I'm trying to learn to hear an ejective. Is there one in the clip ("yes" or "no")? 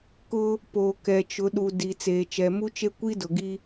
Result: no